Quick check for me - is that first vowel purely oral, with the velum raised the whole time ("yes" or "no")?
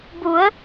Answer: yes